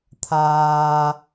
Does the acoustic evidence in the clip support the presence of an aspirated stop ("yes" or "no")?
yes